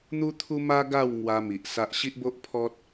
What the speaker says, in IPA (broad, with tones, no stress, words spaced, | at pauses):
n̪u˦t̪ʰu˦ma˦ ɡa˥˧w ŋwa˧ mi˨ʔsa˦ʔ ɕi˦ʔbo˦ʔpʰɔ˦t̚